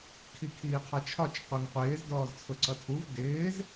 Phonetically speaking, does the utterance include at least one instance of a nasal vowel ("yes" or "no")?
no